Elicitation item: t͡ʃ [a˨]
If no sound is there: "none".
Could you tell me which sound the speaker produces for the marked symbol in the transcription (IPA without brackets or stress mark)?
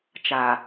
a˨